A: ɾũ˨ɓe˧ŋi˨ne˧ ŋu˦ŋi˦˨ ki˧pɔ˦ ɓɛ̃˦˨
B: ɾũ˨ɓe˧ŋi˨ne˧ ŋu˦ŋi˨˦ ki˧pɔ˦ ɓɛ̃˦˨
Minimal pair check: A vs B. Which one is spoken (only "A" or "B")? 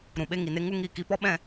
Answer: A